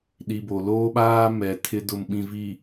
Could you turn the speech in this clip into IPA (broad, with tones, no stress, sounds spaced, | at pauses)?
ɗ i˨ b o˨ l oː˦ ɓ aː˦ m ɛ˨ tʰ ɪ˨ d ʊ˨ m ɓ ĩ˨ v i˨